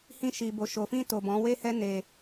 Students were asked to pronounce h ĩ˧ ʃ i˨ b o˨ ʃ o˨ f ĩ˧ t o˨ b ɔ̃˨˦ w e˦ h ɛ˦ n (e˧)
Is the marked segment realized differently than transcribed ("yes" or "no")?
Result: no